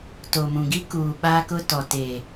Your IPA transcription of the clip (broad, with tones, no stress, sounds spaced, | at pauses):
t o˨ m ũ˨ ɡ i˦ k uː˨ ɓ aː˦ k ʊ˦ t ɔ˨ t eː˨